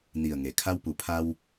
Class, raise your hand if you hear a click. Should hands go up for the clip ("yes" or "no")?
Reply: no